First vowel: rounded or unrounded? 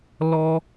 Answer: rounded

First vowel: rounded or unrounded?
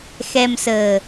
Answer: unrounded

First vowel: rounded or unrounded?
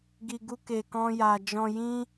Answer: unrounded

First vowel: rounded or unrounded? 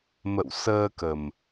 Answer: unrounded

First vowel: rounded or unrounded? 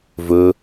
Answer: rounded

